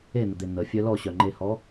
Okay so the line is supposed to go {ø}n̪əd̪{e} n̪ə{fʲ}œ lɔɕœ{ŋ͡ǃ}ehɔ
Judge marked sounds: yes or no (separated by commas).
no, yes, yes, yes